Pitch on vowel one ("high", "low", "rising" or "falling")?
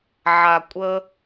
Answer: low